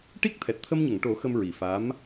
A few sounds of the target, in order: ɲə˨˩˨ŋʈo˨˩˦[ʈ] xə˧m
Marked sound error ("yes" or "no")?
yes